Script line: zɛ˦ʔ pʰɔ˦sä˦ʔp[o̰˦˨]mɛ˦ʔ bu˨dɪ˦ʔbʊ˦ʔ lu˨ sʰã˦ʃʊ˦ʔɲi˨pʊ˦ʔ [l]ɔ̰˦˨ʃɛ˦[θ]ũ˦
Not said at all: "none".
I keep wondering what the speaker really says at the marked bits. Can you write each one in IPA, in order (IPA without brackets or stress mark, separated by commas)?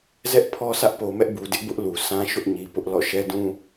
o˨, l, d